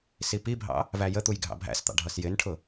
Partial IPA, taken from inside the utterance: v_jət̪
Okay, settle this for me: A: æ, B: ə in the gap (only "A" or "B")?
A